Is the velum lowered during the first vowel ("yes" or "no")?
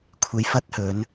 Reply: no